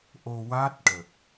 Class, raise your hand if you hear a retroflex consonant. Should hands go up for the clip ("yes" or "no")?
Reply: yes